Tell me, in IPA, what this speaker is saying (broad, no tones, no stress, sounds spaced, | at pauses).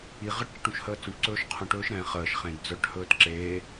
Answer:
i ʁ ə ʈ t͡ʃ ə ʈ ũ ʃ h əː t͡s ũ ʈ ǀ ɵː ʃ qʰ ũ ʈ ɵː ʃ ɾ ɛ̃ χ əː ʃ χ ẽ d d͡z œ ʈ h ɵː t ǁ eː